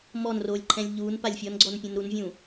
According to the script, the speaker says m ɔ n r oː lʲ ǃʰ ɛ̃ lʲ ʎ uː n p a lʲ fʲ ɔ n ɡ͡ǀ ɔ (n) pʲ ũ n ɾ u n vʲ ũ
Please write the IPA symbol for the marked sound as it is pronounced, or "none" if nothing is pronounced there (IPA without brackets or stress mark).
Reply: n